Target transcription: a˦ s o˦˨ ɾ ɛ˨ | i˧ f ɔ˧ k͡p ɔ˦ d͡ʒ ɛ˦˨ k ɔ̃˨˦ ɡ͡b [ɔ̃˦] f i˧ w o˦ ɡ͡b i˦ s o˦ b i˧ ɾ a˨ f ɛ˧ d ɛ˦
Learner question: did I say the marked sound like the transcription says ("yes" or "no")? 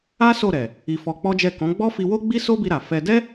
no